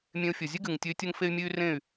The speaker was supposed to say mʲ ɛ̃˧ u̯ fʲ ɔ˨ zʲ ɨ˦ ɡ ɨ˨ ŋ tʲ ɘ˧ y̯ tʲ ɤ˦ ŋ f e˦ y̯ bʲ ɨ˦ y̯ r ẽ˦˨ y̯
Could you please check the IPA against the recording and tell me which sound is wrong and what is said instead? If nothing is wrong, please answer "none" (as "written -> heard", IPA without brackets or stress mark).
bʲ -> mʲ